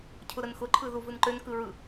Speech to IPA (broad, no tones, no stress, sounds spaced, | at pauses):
cʰ ʊ ɾ ə n x ʊ ǃʰ ɯ ð u v ɯ n ǃ ø n k ɯ ɹ ɯ